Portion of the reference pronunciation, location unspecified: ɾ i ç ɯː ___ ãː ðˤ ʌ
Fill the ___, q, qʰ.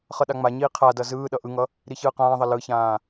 q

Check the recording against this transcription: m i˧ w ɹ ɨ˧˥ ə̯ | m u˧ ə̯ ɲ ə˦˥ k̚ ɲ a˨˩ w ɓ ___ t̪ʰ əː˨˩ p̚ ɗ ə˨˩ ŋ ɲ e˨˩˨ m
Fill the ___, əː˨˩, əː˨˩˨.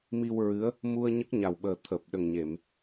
əː˨˩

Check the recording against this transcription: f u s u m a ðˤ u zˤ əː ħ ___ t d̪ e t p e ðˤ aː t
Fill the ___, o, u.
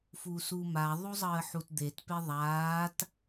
u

